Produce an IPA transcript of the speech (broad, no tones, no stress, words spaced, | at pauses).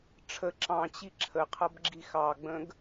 ʈ͡ʂʰə ǁɑ̃t͡ɕi ǁʰəqʰʌbɡ͡ǁix ɑɡ͡bə̃ɡ